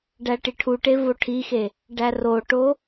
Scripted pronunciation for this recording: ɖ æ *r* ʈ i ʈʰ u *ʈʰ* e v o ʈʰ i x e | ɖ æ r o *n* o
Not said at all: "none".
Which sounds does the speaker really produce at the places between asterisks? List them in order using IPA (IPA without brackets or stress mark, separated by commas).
none, ʈ, ʈ